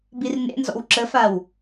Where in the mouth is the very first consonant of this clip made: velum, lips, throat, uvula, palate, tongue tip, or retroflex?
lips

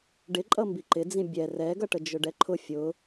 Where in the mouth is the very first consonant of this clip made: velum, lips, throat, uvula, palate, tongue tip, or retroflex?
retroflex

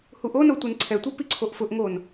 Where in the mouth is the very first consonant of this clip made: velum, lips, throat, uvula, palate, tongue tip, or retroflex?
throat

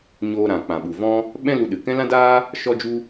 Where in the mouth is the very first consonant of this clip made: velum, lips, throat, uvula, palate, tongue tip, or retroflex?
palate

